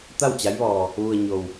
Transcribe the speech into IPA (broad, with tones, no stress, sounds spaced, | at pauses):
t̪ a˥˨ w t͡ɕ a˧˥ j ʋ ɔː˧ | ʋ u˧ ə̯ ɲ o˧ w